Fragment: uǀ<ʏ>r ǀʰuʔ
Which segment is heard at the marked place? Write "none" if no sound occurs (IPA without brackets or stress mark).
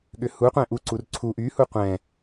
u